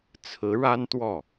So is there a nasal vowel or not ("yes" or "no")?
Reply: no